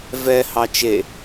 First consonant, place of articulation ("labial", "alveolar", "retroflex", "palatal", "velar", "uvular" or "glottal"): labial